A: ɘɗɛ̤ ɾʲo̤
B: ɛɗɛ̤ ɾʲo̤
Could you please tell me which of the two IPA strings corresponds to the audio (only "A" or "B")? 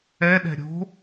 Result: B